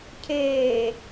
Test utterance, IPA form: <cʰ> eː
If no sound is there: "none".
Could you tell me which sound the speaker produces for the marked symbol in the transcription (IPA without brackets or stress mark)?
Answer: cʰ